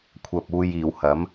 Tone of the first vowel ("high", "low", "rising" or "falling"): low